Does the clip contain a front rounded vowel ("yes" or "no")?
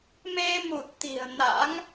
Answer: no